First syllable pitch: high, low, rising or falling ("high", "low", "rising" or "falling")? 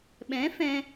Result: rising